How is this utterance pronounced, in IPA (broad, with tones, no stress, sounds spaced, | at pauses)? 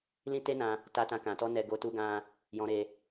l ĩ˦ t e˦ n ã˧ | t a˦ t ã˦ k ã˧ t ɔ˦ n ɛ˦ ɡ o˦ t u˦ ɡ ã˦ | j ɔ̃˧ ɾ e˧